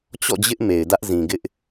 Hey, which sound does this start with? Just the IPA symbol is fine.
t͡ɕ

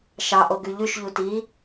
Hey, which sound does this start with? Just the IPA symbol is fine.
ʃ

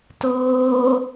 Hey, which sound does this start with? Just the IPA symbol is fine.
t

